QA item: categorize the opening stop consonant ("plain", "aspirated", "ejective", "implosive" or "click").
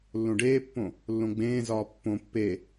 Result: plain